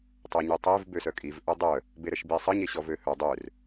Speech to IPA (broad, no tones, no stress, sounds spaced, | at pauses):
tˤ œ ɲ y tˤ e v b ø s œ kʼ i v ʔ œ dˤ œ | b e ɾ ə ʃ b i sˤ ə ɲ e ɕ ɔ v ø h œ dˤ ø r